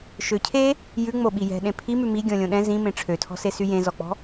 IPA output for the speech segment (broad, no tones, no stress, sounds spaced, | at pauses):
ʃ ø cʰ e | j ʉ ŋ͡m o ɓ i j ɛ̤ ɗ ẽ pʰ i m ʉ m i ɡʲ ɔ̃ lʲ õ ɗ ɛ̃ z ĩ m ẽ ʈ͡ʂʰ ø tʰ ɔ̤ s e s y j ẽ z ɔ k͡p ɔ̤